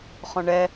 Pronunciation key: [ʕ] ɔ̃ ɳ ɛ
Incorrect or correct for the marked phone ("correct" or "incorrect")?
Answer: incorrect